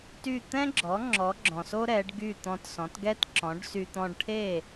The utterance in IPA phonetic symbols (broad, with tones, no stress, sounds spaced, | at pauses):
t y˥˩ t̪ ɛ̃˥ ɡ͡ǁ ɔ˩˥ ŋ͡ǁ ɔ˩˥ ɡ͡ǁ ɔ̃˩ s o˥ ɾ ɛ˩˥ ɖ ɡ y˥˩ t̪ ɔ̃˧ t s ɔ̃˩˥ t ɡ ɛ˥ t ǁ ɔ̃˩˥ ɖ s y˧ t̪ ɔ̃˧ ɖ ʈʰ e˥˩